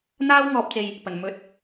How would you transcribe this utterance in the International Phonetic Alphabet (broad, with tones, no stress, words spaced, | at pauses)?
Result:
n̪aː˧wŋɔː˨p̚t͡se˨j | pɐ˨˩n mɵ˨˥t̚